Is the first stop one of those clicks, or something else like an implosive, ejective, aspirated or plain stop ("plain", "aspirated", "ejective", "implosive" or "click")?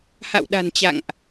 implosive